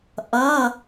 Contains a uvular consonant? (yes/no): no